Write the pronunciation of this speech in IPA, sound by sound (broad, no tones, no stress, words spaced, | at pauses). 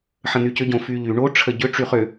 ħə̃n̪ycʏ ɟõfyʎy ɳo ʈ͡ʂʰəɟʏ ʈ͡ʂyχʏ